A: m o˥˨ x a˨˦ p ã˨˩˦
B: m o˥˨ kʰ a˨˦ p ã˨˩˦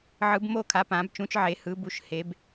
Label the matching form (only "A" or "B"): B